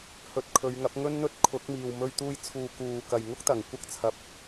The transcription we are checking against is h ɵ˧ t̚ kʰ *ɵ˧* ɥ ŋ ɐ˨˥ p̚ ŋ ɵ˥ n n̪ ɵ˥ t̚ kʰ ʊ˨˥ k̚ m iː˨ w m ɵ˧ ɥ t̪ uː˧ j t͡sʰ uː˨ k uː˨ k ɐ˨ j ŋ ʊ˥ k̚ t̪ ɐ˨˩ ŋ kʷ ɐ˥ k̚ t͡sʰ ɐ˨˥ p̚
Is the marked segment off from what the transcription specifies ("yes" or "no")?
yes